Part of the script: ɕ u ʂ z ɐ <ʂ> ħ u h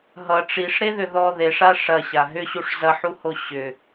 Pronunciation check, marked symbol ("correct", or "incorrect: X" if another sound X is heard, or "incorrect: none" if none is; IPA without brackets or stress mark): incorrect: none